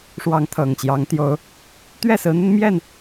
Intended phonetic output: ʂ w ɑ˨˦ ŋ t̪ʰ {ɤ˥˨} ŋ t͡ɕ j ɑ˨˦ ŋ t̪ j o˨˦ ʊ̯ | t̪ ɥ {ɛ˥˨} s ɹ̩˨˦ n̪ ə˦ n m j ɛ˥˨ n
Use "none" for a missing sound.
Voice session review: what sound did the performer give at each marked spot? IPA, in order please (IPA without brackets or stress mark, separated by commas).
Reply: ɤ˨˩, ɛ˥˨